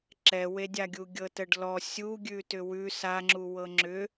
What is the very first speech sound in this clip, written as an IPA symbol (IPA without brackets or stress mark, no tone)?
ǁ